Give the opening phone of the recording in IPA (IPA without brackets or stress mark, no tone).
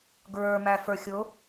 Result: ɡ